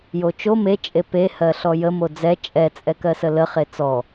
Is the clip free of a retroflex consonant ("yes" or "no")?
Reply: yes